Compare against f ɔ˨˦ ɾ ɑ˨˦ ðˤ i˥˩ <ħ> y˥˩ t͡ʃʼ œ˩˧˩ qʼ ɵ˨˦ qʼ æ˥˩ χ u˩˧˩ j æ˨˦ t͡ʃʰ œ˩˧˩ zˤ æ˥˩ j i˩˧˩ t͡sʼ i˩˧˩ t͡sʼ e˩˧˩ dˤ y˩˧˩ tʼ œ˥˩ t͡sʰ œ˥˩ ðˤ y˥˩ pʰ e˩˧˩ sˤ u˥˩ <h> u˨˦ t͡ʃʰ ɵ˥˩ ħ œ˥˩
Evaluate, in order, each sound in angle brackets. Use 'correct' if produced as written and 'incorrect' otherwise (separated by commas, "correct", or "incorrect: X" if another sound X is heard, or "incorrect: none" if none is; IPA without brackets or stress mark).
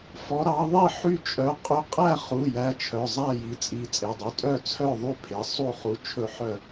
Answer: correct, incorrect: χ